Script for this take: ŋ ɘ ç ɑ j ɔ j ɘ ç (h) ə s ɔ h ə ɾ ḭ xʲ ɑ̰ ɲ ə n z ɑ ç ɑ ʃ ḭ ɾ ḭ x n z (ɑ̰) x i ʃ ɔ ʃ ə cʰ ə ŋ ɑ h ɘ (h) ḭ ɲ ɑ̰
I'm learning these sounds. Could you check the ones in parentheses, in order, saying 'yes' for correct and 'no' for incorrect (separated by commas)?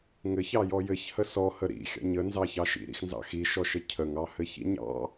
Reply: yes, yes, no